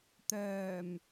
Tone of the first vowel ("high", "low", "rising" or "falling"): low